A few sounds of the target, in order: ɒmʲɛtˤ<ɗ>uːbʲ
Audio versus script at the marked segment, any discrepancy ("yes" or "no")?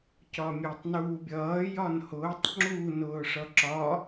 yes